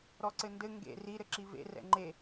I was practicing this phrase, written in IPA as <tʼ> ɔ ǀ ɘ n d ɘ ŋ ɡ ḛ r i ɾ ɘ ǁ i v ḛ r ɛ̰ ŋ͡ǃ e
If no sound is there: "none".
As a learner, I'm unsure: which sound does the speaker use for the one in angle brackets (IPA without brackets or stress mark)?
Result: ɾ